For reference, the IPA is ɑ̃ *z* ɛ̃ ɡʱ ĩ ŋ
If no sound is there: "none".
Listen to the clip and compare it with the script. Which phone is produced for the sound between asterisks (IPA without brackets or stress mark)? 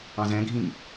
z